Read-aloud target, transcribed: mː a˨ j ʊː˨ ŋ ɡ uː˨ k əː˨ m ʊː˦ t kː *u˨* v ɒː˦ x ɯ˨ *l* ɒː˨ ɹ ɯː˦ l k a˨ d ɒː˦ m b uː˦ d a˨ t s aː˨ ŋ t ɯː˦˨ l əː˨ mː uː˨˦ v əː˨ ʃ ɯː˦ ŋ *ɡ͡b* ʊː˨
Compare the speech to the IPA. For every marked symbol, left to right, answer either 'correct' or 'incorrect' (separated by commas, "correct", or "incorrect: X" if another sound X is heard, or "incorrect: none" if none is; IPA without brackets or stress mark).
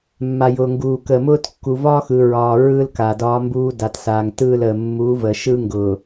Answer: correct, incorrect: ɹ, incorrect: ɡ